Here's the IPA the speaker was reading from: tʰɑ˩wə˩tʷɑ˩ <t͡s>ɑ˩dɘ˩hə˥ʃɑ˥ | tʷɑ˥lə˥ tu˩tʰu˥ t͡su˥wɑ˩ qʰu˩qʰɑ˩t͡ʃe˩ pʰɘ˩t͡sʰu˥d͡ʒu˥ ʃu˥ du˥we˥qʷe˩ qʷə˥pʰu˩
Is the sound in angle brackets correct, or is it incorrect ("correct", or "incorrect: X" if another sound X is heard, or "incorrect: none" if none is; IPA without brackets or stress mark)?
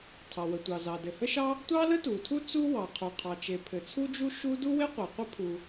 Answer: incorrect: z